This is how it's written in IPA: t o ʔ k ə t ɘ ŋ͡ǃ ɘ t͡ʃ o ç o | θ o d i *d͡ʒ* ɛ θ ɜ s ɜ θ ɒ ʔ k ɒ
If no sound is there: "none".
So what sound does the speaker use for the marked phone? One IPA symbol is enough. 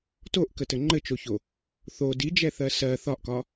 d͡ʒ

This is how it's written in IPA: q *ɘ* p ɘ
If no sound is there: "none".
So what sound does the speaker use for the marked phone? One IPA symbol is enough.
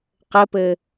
ɘ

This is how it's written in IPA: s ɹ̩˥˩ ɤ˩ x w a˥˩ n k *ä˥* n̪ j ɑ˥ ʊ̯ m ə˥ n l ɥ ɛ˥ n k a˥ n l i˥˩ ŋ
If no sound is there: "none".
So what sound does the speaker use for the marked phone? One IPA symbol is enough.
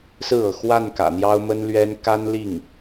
ä̰˨˩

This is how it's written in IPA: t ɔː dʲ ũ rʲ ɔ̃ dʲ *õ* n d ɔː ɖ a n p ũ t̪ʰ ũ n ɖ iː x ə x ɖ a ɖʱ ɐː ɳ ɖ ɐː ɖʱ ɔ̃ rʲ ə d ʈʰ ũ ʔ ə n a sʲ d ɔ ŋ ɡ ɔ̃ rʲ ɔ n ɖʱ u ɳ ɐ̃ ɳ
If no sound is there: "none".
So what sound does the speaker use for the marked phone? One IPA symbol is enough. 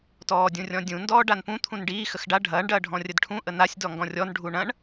ũ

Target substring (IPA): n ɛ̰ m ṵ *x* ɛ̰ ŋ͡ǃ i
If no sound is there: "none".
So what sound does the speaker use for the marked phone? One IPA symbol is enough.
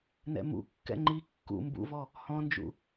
kː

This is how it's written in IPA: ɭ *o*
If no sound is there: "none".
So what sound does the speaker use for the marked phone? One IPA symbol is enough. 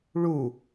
u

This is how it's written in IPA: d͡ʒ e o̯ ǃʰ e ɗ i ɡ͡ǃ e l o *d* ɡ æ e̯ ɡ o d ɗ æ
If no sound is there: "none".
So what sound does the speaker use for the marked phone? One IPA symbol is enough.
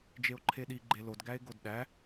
d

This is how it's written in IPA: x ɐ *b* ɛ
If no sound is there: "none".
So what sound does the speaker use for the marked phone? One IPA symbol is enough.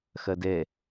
d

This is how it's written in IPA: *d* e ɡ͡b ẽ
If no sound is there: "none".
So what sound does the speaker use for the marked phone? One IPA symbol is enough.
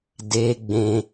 d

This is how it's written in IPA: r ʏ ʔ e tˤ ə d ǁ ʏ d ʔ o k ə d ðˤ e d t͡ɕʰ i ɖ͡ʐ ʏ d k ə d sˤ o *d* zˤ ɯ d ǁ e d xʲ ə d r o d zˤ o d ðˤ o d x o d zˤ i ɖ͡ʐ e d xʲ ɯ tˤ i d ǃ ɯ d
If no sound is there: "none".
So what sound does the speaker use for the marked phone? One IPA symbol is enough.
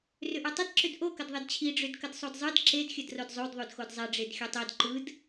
d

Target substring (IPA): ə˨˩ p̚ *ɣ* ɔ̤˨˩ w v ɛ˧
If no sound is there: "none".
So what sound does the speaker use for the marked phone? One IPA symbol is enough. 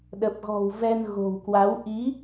ɣ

